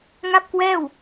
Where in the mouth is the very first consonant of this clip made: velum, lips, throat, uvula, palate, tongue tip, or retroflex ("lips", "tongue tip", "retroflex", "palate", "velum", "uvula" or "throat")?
velum